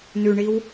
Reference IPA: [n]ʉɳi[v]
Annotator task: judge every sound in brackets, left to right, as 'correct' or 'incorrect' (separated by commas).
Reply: correct, incorrect